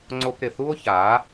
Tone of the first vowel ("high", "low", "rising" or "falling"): high